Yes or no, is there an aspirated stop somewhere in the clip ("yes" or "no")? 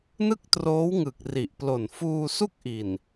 no